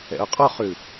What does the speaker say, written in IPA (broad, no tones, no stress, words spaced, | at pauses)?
ɛ̰ʊ̯qʼɔχʉ